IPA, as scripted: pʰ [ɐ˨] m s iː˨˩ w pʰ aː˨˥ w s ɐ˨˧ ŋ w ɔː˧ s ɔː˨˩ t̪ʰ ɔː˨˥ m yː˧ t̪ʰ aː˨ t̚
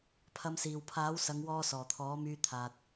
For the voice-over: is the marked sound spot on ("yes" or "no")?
no